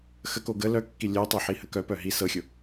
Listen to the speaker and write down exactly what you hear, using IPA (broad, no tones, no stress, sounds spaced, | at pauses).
x ə k o ɡ ə l œ kː i lʲ œ tˤ ɵ ħ i h ə k œ p œ ɦ i s ɤ xʲ ʊ